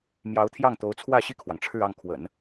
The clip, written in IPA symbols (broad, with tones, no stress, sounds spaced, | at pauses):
m j ɑ˧˥ ʊ̯ t̪ʰ j ɑ˥˩ ŋ t̪ o˧˥ ʊ̯ t͡sʰ w ä˥˧ ɕ i˥˩ kʰ w ɑ˩ ŋ ʈ͡ʂʰ ɻ̩˥˧ ɑ˥˩ ŋ kʰ w ə̰˨˩˦ n